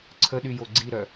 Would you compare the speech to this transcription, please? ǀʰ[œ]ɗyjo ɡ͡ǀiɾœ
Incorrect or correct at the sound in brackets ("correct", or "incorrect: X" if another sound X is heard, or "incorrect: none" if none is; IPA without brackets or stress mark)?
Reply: incorrect: ə